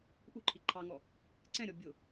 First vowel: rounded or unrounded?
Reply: rounded